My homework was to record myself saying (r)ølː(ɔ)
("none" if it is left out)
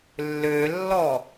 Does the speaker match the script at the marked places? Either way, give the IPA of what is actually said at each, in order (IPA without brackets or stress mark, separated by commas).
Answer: lː, ɔ